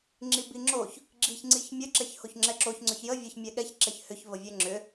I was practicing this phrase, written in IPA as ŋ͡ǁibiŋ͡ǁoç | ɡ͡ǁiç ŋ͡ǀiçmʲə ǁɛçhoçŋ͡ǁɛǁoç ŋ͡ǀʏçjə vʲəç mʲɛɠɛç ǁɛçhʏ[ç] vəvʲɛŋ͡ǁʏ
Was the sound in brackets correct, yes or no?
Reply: yes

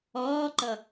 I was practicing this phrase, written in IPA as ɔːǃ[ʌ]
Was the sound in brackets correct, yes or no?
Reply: yes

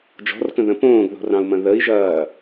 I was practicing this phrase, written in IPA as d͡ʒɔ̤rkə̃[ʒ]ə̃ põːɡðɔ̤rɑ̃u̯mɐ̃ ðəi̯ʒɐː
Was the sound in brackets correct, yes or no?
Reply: no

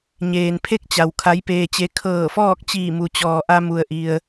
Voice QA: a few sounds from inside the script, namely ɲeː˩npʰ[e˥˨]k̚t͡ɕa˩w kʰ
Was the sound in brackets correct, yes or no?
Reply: yes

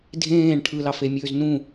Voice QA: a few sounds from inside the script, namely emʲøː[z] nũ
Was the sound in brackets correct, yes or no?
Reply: yes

